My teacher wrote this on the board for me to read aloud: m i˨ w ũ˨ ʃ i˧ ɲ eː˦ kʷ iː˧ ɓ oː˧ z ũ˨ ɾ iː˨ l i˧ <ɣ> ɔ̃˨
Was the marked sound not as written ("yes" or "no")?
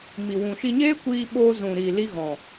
no